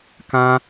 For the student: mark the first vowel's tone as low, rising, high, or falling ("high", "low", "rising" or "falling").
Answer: high